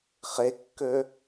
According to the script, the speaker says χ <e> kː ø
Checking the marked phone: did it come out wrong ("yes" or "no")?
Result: no